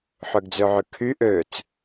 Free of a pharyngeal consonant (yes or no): no